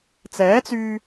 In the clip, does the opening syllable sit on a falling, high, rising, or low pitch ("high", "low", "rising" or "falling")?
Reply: rising